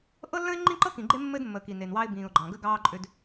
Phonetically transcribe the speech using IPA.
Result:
ʔ ɤ˦ lː ə̃˦ ɪ̯ ŋ͡ǃ ĩ˦ ǃ ɤ˦ k ĩ˨ ɡ͡ǃ e˦ mː ɘ˦ d mː ə˨ k i˨ n e˨ n w ɑ˦ ɪ̯ b ĩː˨ ʊ̯ ɡ͡ǃ ɑ̃˨ ɡ ə˦ ɡ ɑː˦ ǃʼ ʏ˦ d

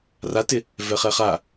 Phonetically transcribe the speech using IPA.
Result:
r a t ɪ | v ɛ χ ɛ χ a

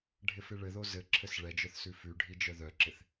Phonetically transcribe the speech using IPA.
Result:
ɖʱ ɪ f ɪ ɭ ɘ ð o z ɘ ǁʰ ɘ s ɭ ɛ d͡ʒ œ θ s ʉ f ʉ ɖʱ i d͡ʒ œ ð œ ǁ ɪ θ

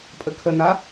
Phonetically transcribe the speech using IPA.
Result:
pʼ ə kʰ ə n a

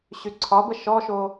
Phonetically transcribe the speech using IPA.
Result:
ɕ y ǀʰ ɒ b ə ʃ ɔ ʃ o

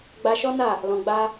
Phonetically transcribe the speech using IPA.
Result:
ɡ͡b a˧ ʃ ɔ˦ n a˦˨ | l ɔ̃˧ ɡ͡b a˦

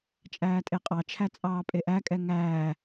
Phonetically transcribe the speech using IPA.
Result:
t͡ʃʼ æː tʼ e qʼ ɑ t͡ʃʰ æ t͡sʼ ɑː pʼ e ʔ æ kʼ ɛ ŋ æː

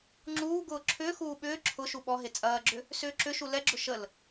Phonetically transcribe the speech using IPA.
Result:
ŋ͡ǁ uː ɡ ʊː ǁʰ ʏː x uː ɓ ʏː ǁʰ ʊ ʃ u ɓ ɔ ɦ e t͡sʼ ɐː ɡ͡ǁ ʏ | s ʏː ǁ ʏ ʃ u l ɛ ɡ͡ǁ ʊ ʃ ə l

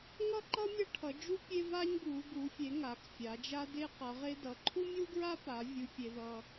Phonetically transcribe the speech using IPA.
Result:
ŋ ʌ˦ ǃ ʌ˦ mʲ ʌ˦ ʈʰ ʌ˩˧ d͡ʒ u˦ pʲ e˦ v a˦ ɲ ɡ u˩˧ ɡ u˩˧ fʲ e˩˧ ŋ a˩˧ k fʲ a˩˧ d͡ʒ a˦ d e˦ q ʌ˩˧ ʁ e˦ d ʌ˩˧ ǃʰ u˦ mʲ u˦ ɡ ɹ a˦ p a˩˧ vʲ u˦ fʲ e˦ ð ʌ˦

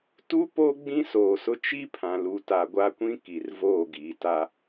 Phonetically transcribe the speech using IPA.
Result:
t u˦ p o˦ ɡ͡b ĩ˦ s oː˨ s ʊ˦ t͡ʃ i˦ pʰ ã˨ l u˨ t a˨ ɡʷ a˦ kʷ ĩ˦ k i˨ r v oː˦˨ ɡ iː˨ t a˦

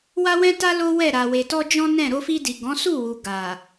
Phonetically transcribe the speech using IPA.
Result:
w a˦ w ɛ̃˦ t a˦ l o˦ w ɛ˦˨ ɾ a˨ w e˨ t ɔ˧ d͡ʒ ɔ̃˦ n ɛ̃˦˨ ɾ o˧ f i˧ d i˨ ɡ ɔ̃˨˦ s u˦˨ w u˨ ɡ a˨

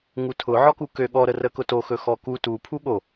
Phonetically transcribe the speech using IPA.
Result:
ŋ u tʰ ʊ ʕ ɔ k u k ø ɠ ɔ ɾ ə r ə k ʊ t o x ɵ x ɔ k u t u pʰ u ɠ o

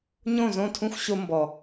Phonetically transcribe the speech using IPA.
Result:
ɲ õ˦˨ z õ˦˨ tʰ ũ˦ xʷ ɕ o˧ m b ɔ˨

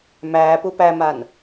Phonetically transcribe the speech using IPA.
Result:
m æː p u p æ m a n

